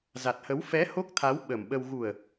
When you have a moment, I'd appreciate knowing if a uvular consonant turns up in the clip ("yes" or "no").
no